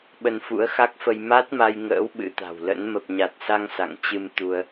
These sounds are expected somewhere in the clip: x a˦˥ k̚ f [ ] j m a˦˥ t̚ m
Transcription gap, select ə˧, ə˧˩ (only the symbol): ə˧